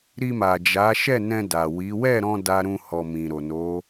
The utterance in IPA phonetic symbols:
ɾi˧ma˨ d͡ʒa˨˦ʃɛ˦˨nɛ̃˧ da˨wi˨˦ wɛ˦˨ɾɔ̃˧ da˦ɾũ˦hɔ˧ mĩ˨ɾo˨no˨˦

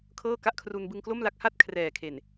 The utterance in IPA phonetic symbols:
kʰɤː˥˩ka˥˩ʔkʰru˧n bɯ˧ŋklo˥˩mla˦˥k̚ha˥˩t̚ kʰrɛː˨˩kʰe˨˩n

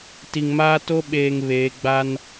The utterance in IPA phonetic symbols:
ti˨ŋmaː˦to˦ɓeː˨ŋ βeː˨˦ɡ͡ba˦n

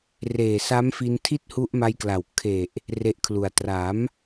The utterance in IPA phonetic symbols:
reː˨˩sa˦˥mfi˧n tʰi˥˩t̚hu˦˥ʔma˦˥jkla˨˩w kʰe˨˩ʔ | re˦˥ʔkʰlu˨˩a̯ tra˩˦m

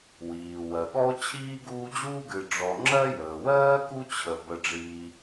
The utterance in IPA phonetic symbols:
wiː˩ wɜ˩ɠɔ˥o̯ t͡ɕʰiː˥ɡuː˦d͡ʑuː˥ɡɨ˨ ɖ͡ʐɔ˨ŋ͡ǁɜ˦ jəː˩wɜː˥ku˦ t͡ɕʰə˨ bə˨ɖ͡ʐiː˨

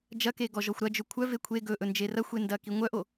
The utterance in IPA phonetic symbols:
d͡ʒɐkeɡɔʒɔxʷ ɾɐd͡ʒɵ kʷʰœve kʷʰe ɡɵʔɵnd͡ʒe rɐxʷendɐki ŋʷœʔo

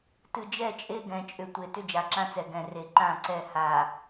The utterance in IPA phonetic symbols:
tɨ˨d͡ʒɛ˦˨t͡ʃʼe˦ɡɛ̃˨ t͡ʃʼʏ˨ tʷe˨ tʏ˦d͡ʒa˨ǁã˦t͡sɛ˨ ɡɛ̃˨ re˨ǃã˦˨ǀɛ˦˨ ha˨

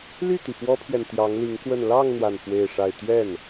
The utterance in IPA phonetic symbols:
ly˥˩t̪i˩ pwɔ˥pʰɥɛ˨nt̪jɑ˧˥ŋ li˧˥ŋkwə˥˧n lɑ˥˧ŋ n̪wa˥˧nfwe˥˧ɪ̯ʂa˥˧ɪ̯ t̪ɥɛ˥˩n

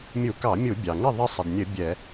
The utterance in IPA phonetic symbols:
mʲu˧˩˧kɑ˧˩˧mʲu˧˩˧ bʲɑ˩ŋɪ˥˨ ðˤɪ˦ sˤɪ˩dnʲə˧˩˧ bʲɛ˧˩˧

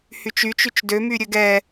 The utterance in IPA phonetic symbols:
hyt͡ʃy t͡ʃyt͡ʃdømy ɾʲøɡɛ

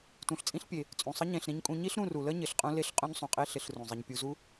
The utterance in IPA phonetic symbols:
tũ˨ɬ t͡sʼĩ˧ɬpʲe˨ | t͡sʼũ˨sˤə˦ ɲẽ˧ɬɾĩ˦ɲkʼũ˦ ɲi˦ɬɾũ˦˨ru˨ lə˦ ɲɪ˨ɬqʼũ˦ le˦˨ɬqʼũ˦ɲ sˤũ˨qʼe˦ ɬɪ˨˦ɬrũ˨zˤɪ˧ɲ pʲu˧zu˦

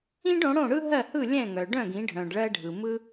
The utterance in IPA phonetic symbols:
ĩ˥ɖõ˩˥ɽõ˥˩ ɽɯ˥ɦɜ˥˩hɯ˥˩ lʲɛ̃˥˩ŋœ˩ ɖœ̃˥˩ɡĩ˩˥ ɖʱœ̃˩ɖɭɜ˧ɖʱɯ˩ mɯ˥

